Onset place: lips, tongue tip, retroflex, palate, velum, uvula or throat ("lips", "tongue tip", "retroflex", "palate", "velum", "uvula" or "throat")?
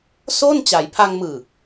tongue tip